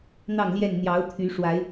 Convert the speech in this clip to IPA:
n̪ɑ˥˨ŋljɛ˥˨n n̪jɑ˨˦ʊ̯ t̪ʰy˨˦ʂwa˨˦ɪ̯

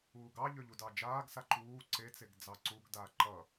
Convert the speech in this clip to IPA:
uːɡɑ ʎøʎudɑd͡ʒaːɡ saǃuː ǀet͡seɡ d͡zɑǀuɡdaː ǃʌ

